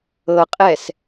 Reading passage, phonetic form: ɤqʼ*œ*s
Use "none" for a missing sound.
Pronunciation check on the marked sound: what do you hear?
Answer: ɛ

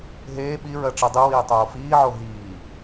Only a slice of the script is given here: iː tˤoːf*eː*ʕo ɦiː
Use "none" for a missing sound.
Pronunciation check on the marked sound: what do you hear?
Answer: iː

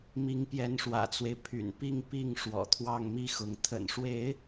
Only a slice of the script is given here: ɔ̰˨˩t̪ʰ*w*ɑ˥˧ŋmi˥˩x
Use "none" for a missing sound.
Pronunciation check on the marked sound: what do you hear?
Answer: w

